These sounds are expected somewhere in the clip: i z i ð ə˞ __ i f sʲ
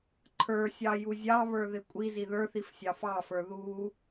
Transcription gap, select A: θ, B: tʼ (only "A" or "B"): A